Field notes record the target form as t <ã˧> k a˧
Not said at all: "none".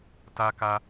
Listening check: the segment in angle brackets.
a˧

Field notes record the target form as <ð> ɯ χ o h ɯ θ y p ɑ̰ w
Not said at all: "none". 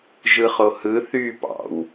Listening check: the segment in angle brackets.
ʒ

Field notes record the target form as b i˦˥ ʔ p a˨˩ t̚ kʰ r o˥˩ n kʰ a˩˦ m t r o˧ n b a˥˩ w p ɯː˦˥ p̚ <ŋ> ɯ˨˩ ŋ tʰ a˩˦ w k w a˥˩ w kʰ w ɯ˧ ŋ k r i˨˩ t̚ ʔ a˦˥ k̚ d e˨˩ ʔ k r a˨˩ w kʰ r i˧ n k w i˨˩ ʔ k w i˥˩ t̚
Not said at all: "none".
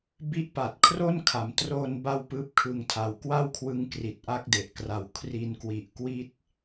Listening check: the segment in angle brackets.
kʰ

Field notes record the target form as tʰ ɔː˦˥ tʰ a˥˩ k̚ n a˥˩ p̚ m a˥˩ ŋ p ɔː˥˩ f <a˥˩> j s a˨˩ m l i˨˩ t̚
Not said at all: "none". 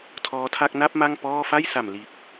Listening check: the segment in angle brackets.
a˥˩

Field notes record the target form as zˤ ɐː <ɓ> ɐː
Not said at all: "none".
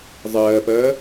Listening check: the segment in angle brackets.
p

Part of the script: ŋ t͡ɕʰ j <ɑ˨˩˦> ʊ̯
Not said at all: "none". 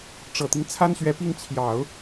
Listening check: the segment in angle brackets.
ɑ˨˩˦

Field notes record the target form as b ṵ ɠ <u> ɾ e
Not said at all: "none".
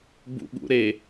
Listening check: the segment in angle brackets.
ṵ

